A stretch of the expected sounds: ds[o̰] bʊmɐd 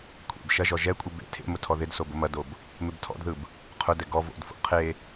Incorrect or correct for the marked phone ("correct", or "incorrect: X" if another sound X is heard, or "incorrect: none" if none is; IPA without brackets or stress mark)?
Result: incorrect: o